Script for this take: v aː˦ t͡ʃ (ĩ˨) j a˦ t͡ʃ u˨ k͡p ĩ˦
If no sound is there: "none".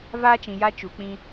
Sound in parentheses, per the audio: ĩ˨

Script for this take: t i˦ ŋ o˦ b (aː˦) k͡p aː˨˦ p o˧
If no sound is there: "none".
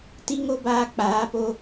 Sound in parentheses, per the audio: aː˧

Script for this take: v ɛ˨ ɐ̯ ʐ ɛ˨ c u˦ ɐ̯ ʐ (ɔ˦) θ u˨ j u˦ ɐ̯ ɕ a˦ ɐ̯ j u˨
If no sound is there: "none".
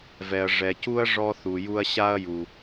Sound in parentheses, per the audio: ɔ˦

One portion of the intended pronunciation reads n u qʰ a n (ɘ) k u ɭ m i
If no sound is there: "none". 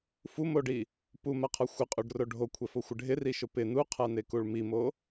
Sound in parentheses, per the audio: e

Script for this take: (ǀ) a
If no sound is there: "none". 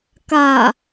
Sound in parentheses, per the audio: k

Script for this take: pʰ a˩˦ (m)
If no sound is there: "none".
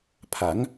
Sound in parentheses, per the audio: ŋ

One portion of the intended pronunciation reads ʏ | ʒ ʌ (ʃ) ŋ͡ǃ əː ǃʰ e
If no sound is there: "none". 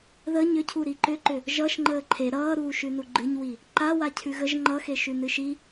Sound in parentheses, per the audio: ʃ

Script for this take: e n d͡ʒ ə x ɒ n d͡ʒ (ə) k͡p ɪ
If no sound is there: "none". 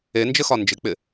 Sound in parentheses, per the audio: ɪ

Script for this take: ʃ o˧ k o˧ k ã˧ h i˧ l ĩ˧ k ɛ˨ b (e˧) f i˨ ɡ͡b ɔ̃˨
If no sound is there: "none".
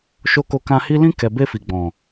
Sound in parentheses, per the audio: e˧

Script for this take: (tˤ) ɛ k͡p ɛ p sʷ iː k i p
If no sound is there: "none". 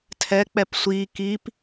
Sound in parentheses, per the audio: tʰ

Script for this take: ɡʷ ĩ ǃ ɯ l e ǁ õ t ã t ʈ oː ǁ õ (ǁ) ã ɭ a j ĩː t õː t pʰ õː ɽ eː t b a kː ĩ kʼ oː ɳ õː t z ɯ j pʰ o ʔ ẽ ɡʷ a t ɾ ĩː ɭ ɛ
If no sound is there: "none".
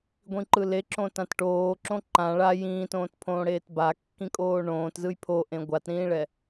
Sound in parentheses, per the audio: ǃ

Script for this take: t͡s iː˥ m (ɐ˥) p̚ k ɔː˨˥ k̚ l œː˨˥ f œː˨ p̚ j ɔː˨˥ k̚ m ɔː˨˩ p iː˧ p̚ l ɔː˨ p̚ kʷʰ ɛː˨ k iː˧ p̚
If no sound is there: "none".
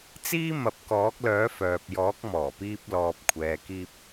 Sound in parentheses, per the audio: ɐ˨˥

